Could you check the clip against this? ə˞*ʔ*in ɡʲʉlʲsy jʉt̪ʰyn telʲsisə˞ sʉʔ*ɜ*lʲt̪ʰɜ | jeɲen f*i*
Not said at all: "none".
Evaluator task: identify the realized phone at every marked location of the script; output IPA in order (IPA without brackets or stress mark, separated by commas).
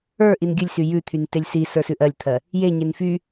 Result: ʔ, ɜ, y